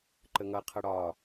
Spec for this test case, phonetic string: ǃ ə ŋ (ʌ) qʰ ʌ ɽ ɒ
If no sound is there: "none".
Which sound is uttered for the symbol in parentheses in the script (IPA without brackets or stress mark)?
ʌ